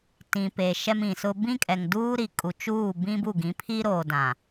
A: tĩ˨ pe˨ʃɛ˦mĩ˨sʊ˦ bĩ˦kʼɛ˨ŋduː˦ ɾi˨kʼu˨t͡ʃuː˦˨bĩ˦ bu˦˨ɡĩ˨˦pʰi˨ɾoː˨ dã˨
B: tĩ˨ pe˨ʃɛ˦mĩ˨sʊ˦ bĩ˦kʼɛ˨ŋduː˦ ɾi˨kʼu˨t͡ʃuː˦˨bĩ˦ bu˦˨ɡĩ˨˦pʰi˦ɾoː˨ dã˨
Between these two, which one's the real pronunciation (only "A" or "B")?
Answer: B